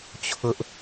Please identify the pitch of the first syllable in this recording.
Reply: high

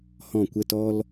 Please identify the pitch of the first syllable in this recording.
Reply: falling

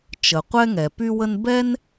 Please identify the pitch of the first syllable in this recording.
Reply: low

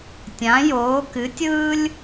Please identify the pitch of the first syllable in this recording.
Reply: rising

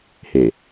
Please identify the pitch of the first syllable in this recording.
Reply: low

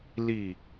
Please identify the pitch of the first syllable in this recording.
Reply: falling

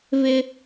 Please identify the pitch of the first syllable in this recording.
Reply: high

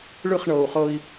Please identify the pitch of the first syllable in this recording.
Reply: falling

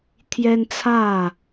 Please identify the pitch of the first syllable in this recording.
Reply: high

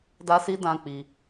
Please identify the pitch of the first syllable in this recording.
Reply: high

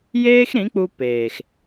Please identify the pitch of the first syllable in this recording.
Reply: high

